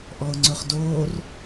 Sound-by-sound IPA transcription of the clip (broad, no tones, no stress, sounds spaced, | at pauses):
ʔ ɔ ʊ̯ ŋ͡ǀ ɵ χ d oː r